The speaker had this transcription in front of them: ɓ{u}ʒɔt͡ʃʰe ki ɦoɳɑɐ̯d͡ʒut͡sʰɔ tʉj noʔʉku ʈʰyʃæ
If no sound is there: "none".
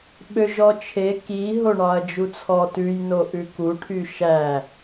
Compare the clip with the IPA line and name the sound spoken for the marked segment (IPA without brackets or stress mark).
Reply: ø